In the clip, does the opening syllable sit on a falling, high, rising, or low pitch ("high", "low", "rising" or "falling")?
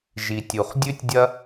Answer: low